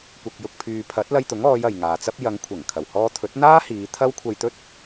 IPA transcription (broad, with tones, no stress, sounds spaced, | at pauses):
kʷ ɐ˨ k̚ j ʊ˨ k̚ pʰ yː˨ pʰ ɐ˨˥ t̚ l ɐ˧ j t̪ ʊ˨˥ ŋ ɔː˨˧ j ɐ˨ j ŋ aː˨ t͡s ɐ˥ p̚ j ɐ˨˧ ŋ kʷʰ ɐ˨˩ ŋ kʰ ɐ˨˩ w h ɔː˧ t̪ʰ ɵ˨˥ t̚ n̪ aː˥ h iː˨˧ t̪ʰ ɐ˥ w kʷʰ ɐ˧ j t̪ ɵ˥ t̚